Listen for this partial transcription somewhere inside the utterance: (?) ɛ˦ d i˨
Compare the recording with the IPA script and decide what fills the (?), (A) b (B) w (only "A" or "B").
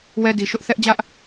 B